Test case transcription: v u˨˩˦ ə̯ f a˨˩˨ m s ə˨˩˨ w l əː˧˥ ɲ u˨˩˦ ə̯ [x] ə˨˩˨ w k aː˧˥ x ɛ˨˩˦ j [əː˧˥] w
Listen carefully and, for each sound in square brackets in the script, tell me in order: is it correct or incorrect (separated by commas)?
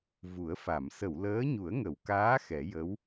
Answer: incorrect, incorrect